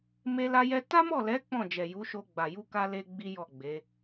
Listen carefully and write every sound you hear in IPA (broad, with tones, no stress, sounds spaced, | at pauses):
m e˧ l a˧ j ɛ˧ t a˦ m ɔ˦˨ l ɛ˨˦ k͡p ɔ̃˦˨ d͡ʒ ɛ˨ j u˨˦ ʃ o˧ ɡ͡b a˨ j u˧ k a˦ l e˦ ɡ͡b i˦ j ɔ˦˨ ɡ͡b e˨˦